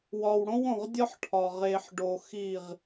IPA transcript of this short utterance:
wɒ˨wɽõ˦wõ˨ʁdʲɒ˦ħ ʈʰɒ˨ʁe˨ħɖo˨ xi˦˨ʁ

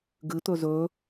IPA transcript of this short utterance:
ɡɨt̪ɵ zɵ

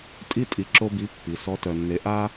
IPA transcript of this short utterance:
tʼi˥ tʼi˧ǁo˥bi˧˥ pːi˩˧sɔ˧˥ tœ˧nːe˧˥ ʔa˥

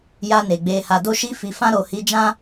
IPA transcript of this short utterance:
ja˧ne˨ ɡ͡be˨ha˨ do˧ʃi˧fi˨fã˧ ɾo˨hi˨˦d͡ʒã˦

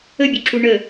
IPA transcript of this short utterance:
əbʲuǁu ɳə

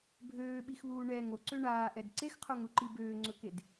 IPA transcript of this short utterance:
bʱøːɓixβuː ɳɛ ŋoǀø ɳaːʔɛd ǀexqʰoŋɾuǃi bøːŋ͡ǀɵked

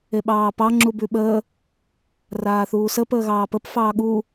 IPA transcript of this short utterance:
eɓɑːpɑ ŋ͡ǁubʉɓəː | raːθuːsə pəːɣɑːpəp fɑːɠu

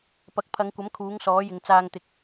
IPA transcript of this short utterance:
pɐ˨˥k̚pʰɐ˨˧ŋkʷɐ˨˥m kʰuː˨˥ŋsɔː˨˥jɪ˨ŋ t͡saː˧ŋt̪ɪ˨˥k̚

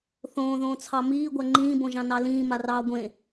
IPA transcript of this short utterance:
θõːðõːt͡sʰɑ miːɡʷa ŋ͡ǃĩːbõʒɑ̃ nɑlĩːmarɑː ɡʷẽ

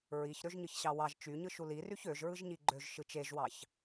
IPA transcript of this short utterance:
ɹiç ɾøʒɲɯçɕɑwɑʒ t͡ʃyɲɯ ʃuliryç øʒɹɯʒɲi ɡ͡ǃøʒ ʃɯt͡ʃeʒwɑç

